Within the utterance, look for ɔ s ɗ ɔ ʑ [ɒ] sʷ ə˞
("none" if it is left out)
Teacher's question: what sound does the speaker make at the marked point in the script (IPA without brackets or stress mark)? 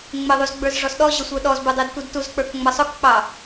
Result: ʌ